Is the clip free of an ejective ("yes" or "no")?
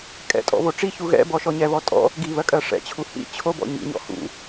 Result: no